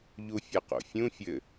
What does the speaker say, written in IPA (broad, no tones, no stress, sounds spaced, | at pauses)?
ʎ u fʲ ɤ q o̰ fʲ ũ fʲ ɘ